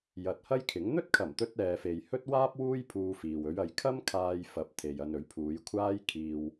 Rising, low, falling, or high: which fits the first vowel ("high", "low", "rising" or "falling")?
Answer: low